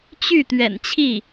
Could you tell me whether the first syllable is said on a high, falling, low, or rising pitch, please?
falling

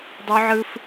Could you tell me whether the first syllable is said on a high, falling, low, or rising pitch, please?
high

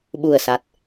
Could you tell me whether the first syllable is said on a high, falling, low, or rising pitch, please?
low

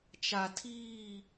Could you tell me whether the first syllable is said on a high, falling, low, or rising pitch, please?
low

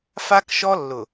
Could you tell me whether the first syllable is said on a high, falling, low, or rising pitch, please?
high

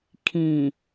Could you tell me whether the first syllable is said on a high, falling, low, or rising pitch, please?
low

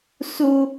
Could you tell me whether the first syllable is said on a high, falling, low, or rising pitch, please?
high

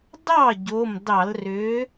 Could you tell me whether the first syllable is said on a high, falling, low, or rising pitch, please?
falling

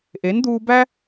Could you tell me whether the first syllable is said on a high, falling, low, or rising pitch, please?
rising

